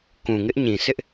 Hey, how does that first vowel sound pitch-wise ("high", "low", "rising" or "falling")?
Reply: low